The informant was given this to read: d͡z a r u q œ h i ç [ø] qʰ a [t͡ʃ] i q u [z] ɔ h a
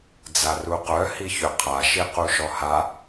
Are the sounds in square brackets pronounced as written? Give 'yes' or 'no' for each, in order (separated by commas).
yes, no, no